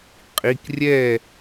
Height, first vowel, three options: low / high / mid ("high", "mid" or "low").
high